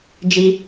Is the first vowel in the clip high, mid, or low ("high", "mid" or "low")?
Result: high